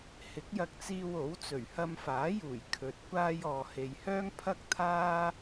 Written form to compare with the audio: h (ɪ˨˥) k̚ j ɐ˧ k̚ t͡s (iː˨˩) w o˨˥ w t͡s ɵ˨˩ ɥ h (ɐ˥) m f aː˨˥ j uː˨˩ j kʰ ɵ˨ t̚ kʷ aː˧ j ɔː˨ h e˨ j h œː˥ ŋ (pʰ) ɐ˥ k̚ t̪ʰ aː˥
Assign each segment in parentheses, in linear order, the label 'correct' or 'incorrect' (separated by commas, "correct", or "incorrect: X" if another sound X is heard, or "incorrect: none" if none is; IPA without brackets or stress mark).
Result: correct, incorrect: iː˧, incorrect: ɐ˧, correct